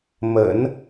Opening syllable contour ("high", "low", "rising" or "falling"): low